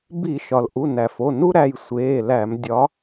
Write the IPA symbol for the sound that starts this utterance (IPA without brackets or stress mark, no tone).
b